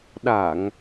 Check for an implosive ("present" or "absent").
present